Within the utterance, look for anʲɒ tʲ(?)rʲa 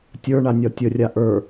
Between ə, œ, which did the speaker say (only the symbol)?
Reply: ə